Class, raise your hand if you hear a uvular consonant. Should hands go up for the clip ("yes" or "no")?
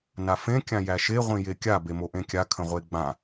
yes